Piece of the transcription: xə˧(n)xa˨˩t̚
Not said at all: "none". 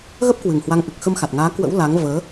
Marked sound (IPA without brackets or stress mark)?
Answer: m